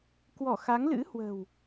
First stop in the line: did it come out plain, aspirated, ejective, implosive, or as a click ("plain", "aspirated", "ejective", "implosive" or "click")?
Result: plain